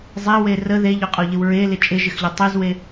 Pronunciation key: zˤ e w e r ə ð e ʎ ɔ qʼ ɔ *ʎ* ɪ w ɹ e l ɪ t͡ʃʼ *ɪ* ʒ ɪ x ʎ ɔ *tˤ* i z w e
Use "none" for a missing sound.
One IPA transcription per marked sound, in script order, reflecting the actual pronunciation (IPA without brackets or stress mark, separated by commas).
ʎ, ɪ, tˤ